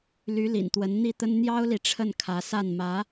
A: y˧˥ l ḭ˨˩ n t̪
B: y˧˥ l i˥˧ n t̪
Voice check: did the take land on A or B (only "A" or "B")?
A